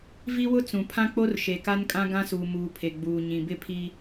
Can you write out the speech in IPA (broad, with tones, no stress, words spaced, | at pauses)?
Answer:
vi˦wʊ˦ t͡sũ˨pʰã˦k͡po˦r ʃe˨ka˦nkʼã˦ ɡã˦suː˨ muː˨pʰe˨ɡ͡buː˨ ɲĩ˨bɪ˦˨pʰi˦